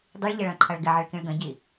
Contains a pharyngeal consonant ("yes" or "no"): yes